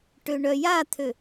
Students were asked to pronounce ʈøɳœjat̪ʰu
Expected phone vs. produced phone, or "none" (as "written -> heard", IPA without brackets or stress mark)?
u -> ø